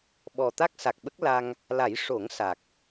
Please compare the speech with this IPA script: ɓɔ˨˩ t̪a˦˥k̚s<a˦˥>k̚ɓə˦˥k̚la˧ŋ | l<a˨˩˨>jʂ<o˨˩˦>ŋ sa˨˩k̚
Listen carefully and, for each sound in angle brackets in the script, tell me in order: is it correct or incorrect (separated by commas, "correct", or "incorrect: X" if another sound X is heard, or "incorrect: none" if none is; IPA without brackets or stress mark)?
incorrect: a˨˩, incorrect: a˨˩˦, correct